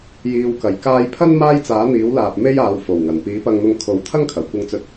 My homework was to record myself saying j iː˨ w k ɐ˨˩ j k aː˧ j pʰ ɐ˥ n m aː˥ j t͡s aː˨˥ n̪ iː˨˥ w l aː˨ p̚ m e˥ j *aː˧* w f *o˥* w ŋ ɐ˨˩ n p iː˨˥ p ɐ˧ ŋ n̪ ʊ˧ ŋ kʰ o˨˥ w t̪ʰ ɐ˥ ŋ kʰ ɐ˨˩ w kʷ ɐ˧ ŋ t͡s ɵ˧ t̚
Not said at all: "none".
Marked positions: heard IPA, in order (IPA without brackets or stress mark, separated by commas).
aː˨˧, o˨˩